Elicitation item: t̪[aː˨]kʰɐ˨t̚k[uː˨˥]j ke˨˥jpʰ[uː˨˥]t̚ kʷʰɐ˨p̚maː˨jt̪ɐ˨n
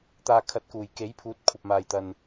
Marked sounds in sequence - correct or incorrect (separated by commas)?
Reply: correct, incorrect, correct